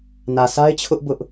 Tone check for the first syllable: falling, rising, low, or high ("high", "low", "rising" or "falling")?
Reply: low